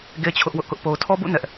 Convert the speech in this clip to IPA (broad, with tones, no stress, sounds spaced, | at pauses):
ɡ e˦ t͡ɕʰ ʊ˦ ʔ w ʊ˦ ʔ k ʊ˦ ʔ p o˦ ʊ̯ tʰ ɔ˦ b ṵ˦˨ n ɛ˦ ʔ